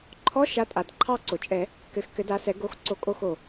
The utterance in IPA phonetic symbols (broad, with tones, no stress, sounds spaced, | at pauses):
ǃʰ ɔ˧˥˧ ʃ a˨˥ tʼ a˩ d ǃʰ ɑ˦˨ ǀ o˩ t͡ʃʼ ɛ˨˩˦ | k ɘ˨˥ x k ɘ˨˥ d a˨˥ s ɛ˨˥ ɡ o˦˨ x ǀ o˦˨ kʼ o˦˨ x o˩